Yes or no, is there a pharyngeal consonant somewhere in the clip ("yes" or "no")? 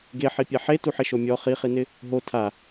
yes